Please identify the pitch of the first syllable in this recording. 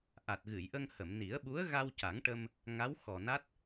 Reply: low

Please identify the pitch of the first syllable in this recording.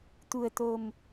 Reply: low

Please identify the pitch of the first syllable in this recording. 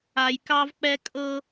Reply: low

